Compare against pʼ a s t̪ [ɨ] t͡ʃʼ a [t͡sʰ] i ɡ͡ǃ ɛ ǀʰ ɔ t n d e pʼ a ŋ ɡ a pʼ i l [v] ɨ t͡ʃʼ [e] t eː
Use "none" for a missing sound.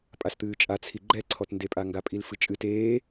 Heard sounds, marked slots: ɨː, t͡sʰ, f, ɨ

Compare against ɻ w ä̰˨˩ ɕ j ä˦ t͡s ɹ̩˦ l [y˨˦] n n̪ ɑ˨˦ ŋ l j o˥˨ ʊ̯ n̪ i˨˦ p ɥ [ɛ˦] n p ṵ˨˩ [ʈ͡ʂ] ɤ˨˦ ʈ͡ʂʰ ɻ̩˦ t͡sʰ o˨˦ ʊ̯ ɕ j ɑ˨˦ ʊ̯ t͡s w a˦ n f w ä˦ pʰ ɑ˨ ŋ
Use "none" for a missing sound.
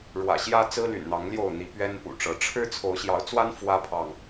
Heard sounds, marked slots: y̰˨˩, ɛ˦, ʈ͡ʂ

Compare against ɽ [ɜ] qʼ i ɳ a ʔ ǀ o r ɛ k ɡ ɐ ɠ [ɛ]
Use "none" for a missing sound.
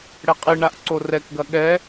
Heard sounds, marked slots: ɛ, ɛ

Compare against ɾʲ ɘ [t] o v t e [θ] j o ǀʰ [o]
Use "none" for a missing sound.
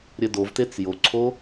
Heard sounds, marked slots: d, t͡s, o

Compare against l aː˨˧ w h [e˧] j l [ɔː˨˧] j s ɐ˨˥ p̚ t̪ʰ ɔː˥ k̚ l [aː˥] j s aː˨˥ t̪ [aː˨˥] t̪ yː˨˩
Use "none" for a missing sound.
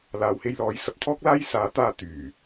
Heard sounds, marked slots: e˧, ɔː˨˧, aː˥, aː˧

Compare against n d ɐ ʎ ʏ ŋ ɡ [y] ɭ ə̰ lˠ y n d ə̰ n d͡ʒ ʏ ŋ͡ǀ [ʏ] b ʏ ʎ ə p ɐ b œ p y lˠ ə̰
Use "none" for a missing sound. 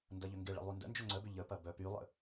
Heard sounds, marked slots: ɪ, ə

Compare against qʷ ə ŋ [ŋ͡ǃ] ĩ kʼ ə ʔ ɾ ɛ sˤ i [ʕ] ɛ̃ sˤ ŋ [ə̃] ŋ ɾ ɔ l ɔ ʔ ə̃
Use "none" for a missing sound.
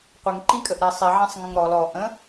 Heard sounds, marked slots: ǃ, ʕ, ə̃

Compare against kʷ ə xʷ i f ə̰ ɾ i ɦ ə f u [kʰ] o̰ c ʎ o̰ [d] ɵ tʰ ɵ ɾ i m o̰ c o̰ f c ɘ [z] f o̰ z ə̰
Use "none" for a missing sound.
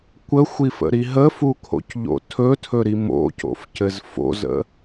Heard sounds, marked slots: kʰ, tʰ, z

